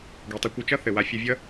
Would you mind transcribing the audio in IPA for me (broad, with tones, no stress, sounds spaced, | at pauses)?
ɡ i˩ tˤ ʊ˧ kʷ ɘ˧ t͡ʃ ʌ˥ θ ɘ˩ w a˧ fʲ ɘ˧ vʲ ʌ˥